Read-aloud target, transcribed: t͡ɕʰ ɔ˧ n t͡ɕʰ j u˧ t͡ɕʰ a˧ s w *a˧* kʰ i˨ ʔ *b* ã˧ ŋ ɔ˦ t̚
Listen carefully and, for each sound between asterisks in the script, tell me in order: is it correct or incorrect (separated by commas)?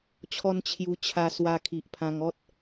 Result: correct, incorrect